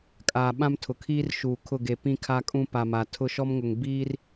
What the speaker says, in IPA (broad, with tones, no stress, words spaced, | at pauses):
kʼaː˨ ɓã˦mtʰʊ˨kʰiː˦rʃuː˨ kʰʊ˦˨ɡe˨ pĩ˦kʰa˦kʼũ˦pa˨ ma˨ tʰʊ˦˨ʃɔ˦mŋʊ˨ŋ biː˦r